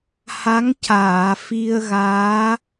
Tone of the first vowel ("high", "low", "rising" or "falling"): rising